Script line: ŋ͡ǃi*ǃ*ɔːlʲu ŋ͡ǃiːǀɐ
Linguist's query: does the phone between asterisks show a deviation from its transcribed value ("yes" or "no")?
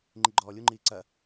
yes